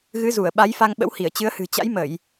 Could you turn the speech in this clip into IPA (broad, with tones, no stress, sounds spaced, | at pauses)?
ɣ ɨ˨˦ z u˧˩ ə̯ ɓ a˨˦ j f a˧ ŋ ɓ ə̰˧˥ w h i˧˩ ə̯ t͡ɕ ɨ˨˦ ə̯ h ɨ̤˨˩ t͡ɕ a̰˧˥ j m ə˧˩˨ j